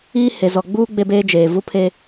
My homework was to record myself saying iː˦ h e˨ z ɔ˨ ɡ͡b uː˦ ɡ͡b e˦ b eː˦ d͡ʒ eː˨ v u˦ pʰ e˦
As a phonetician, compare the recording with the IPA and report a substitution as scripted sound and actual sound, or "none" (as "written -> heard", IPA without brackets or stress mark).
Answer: none